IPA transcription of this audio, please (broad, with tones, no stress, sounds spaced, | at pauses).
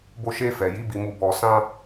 b o˧ ʃ e˧ f ɛ˨ j i˨˦ b i˧ m u˧ b ɔ˧ s ã˦